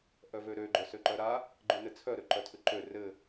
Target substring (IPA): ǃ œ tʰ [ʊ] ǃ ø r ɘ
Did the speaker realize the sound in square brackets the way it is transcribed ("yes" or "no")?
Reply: no